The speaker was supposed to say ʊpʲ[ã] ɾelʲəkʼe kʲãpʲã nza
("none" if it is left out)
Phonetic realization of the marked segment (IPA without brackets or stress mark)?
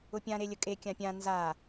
ã